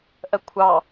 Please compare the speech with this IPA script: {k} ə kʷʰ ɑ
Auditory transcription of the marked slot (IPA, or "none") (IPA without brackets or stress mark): ʔ